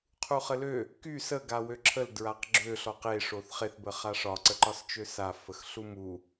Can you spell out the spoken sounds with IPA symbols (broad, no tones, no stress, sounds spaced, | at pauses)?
qʰ u χ ə l ø | k y s ə ɡ a w ø ǁʰ ə l d ɹ a q ɡ͡ǁ ø ɬ ɔ q e ʂ o θ χ e θ b ə χ a ʂ ɒ ǀ ə ǃ ɒ s t͡ʃ ø s a f ə x ɬ u m u